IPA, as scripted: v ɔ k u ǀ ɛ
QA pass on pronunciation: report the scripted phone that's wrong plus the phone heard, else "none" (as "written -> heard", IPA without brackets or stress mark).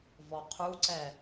k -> qʰ